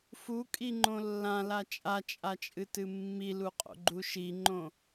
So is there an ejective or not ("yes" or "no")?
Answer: yes